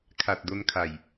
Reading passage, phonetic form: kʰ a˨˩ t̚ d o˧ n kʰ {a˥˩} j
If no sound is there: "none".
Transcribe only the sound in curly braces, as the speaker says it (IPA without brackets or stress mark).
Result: a˨˩